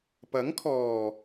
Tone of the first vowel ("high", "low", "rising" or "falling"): rising